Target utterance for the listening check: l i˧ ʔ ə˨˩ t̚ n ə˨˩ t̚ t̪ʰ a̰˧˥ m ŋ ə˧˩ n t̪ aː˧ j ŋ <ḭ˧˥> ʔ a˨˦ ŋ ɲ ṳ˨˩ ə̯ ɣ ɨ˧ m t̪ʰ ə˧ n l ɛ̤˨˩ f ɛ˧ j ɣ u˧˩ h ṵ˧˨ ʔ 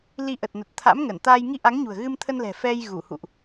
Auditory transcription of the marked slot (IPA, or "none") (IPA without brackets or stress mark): i˧